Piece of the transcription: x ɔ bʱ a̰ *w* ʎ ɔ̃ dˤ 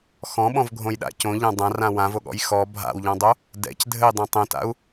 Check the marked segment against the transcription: correct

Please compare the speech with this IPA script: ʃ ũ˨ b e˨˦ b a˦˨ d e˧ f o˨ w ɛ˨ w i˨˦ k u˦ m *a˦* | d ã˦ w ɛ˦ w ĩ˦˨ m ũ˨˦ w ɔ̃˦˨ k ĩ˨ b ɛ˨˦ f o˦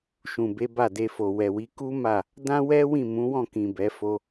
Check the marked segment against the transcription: incorrect: a˦˨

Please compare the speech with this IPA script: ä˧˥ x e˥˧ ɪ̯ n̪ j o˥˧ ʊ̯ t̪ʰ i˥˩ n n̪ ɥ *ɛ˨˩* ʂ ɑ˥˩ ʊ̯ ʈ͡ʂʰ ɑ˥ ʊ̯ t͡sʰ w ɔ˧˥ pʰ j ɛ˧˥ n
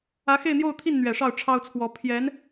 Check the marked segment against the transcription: correct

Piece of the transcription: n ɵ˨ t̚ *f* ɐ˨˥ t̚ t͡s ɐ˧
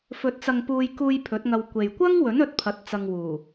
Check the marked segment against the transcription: incorrect: pʰ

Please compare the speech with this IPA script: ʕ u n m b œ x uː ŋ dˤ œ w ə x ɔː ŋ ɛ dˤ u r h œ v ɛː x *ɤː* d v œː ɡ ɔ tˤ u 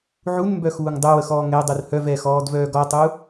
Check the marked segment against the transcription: incorrect: ɔː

